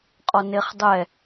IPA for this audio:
qʼ ɔ n e χ dˤ ɛ

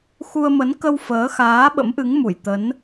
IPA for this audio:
x u˧ ə̯ m ə˨˦ n k ə˧ w f əː˨˦ x aː˨˦ ɓ ə̰˧˥ m ʔ ɨ˨˦ ŋ m u˧˩ j t̪ ə˨˦ n

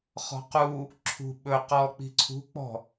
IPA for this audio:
χ ɔ̤ q u | ǁʰ ṳ ɓ ɵ q ɔ k͡p i̤ ǀʰ ṳ k͡p ɔ̤

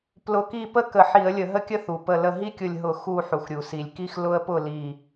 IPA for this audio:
p l ʊ˧˩ k i˥˨ p ə˥˨ k ə˧˩˧ ħ i˧˩˧ ə̯ lʲ ə˧˩˧ ɦ ə˦ kʲ ə˦ θ u˩ p ə˧˩ l ə˧˩ ɦ i˦ kʲ ʊ˧˩ lʲ ɦ ʊ˧˩˧ x u˧˩ ħ u˩ x ɾʲ u˩ s i˩ lʲ k i˦ x l ʊ˦ ə̯ p ʊ˥˨ l i˧˩

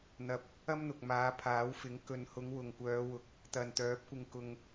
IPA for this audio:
n̪ ɐ˧ p̚ | ɐ˥ m n̪ ʊ˨ k̚ m aː˨˧ pʰ aː˨˥ w f ɪ˨˥ ŋ k ɵ˨ n h ʊ˨˧ ŋ w ʊ˨ ŋ kʷ œː˨˧ w ʊ˨˥ k̚ | t̪ ɐ˨ n t̪ œː˨˥ p̚ kʷ ɪ˧ ŋ k ʊ˧ ŋ

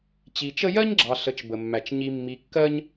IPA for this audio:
t͡ɕ i˨ t͡ʃ ə˦ j ɜ˥ ɲ ɡ͡ǁ ɑ˨ ɬ ə˨ t͡ʃ b ə˩ mː æ˩ t͡ʃ ɲ i˨ mː i˨ kː ɜ˦ ɲ

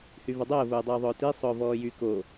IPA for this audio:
h y v ə dˤ əː v ʊː dˤ əː ðˤ ʊː t i sˤ ʊː v ɔː j y k o

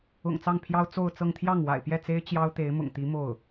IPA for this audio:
ʊ̰˨˩ ŋ t͡s ɑ˥˩ ŋ pʰ j ɑ˥ ʊ̯ t͡s o˥˧ ʊ̯ t͡s ɤ˥˧ ŋ t̪ʰ j ɑ˥˩ ŋ w a̰˨˩ ɪ̯ p j ɛ˥˩ t͡s e˥ ɪ̯ t͡ɕ j ɑ˥ ʊ̯ t̪ e˧˥ ɪ̯ m ʊ̰˨˩ ŋ t̪ i˧˥ m o˥˩ ʊ̯

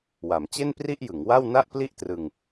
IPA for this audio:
w a˩˦ m t͡ɕ e˥˩ n p r i˥˩ ʔ j ɯ˩˦ ŋ w a˥˩ w n a˥˩ ʔ p l i˥˩ ʔ t r ɯ˧ ŋ

